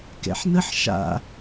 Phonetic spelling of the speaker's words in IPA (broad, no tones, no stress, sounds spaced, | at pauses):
k ɛ̰ ħ n ə ħ ʃ a̰